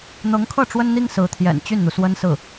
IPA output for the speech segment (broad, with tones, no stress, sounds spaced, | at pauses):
n̪ ɤ˧˥ ŋ kʰ ɤ˥˩ ʈ͡ʂ w ə˥ n n̪ i˥ ŋ s ɹ̩˧˥ t̪ʰ j ɛ̰˨˩ n t͡ɕ y˥˩ n n̪ u˩ s w ə˥ n s ɹ̩˥˩